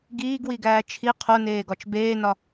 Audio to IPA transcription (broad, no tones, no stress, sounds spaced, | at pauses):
ɡ iː ɡ w i ɡ æː t͡ʃʰ i qʰ o n eː ɡ ɒ t͡ʃ b eː n ɒ